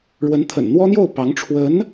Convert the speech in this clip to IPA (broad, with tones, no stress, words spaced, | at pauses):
ɻwə˧˥n t̪ʰə̰˨˩nn̪wɔ˥n̪jo˥˩ʊ̯ pɑ˧˥ŋʈ͡ʂʰwə˧˥n